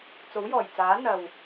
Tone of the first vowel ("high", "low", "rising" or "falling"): rising